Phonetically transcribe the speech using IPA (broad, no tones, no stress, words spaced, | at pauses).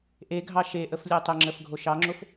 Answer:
ʔeɡʱɑ ʃeʔəf lʲɛtˤəŋ͡ǁəf ɡʱoʃɑŋ͡ǁof